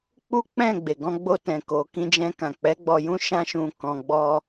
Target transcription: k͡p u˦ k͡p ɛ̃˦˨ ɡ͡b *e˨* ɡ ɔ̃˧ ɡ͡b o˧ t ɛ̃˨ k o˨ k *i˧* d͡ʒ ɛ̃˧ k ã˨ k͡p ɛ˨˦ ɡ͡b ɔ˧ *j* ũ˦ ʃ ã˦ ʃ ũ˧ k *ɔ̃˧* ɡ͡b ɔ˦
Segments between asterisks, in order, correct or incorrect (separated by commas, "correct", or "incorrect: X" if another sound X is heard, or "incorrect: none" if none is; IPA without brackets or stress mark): correct, incorrect: ĩ˧, correct, correct